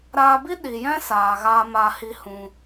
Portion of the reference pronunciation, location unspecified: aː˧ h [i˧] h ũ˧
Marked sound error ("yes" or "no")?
no